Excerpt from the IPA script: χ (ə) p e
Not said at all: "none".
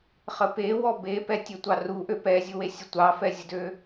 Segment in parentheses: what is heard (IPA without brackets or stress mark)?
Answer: ə